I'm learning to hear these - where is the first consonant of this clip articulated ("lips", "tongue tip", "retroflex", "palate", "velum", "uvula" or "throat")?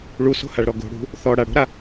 retroflex